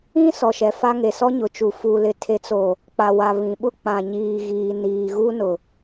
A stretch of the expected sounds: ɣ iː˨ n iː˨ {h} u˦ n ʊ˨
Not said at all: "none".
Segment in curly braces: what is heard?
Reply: ɣ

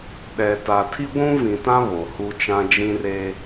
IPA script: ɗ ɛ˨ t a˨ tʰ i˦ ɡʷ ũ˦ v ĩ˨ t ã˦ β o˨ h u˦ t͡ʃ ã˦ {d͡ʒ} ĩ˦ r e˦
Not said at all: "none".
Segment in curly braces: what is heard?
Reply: d͡ʒ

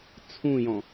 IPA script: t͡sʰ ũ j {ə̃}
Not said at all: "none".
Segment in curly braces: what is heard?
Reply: ɔ̃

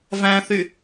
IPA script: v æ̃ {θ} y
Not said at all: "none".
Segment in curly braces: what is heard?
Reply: θ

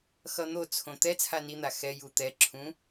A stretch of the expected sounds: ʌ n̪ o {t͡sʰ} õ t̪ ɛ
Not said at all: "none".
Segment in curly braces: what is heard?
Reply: t͡sʰ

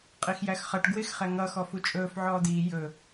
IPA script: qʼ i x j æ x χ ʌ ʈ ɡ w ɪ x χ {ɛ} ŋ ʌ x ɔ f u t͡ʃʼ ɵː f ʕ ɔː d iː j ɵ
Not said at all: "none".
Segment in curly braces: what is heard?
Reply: ɛ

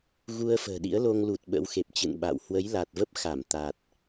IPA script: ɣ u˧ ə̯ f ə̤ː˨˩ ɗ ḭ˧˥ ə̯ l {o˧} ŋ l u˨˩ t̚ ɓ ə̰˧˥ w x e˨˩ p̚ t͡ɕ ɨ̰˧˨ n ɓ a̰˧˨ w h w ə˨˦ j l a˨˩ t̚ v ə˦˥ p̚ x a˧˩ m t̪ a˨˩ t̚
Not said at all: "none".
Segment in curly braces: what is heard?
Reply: o˧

